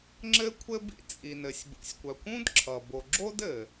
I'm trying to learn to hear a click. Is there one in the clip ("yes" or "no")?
yes